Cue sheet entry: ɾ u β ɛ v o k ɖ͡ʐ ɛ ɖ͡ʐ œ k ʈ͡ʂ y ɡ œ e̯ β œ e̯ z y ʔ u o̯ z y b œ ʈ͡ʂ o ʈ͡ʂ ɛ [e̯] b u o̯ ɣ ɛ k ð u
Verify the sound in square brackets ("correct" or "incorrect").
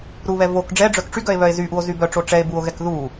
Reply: correct